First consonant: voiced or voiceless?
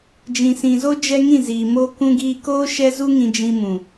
voiced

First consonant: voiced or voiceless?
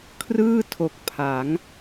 voiceless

